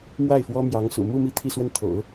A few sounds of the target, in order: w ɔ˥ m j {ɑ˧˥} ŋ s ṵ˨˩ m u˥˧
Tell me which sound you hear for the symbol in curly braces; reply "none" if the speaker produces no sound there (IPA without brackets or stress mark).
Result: ɑ˧˥